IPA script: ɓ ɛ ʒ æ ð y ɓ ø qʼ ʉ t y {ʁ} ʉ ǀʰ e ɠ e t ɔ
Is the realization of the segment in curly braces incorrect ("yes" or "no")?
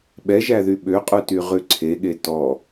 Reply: no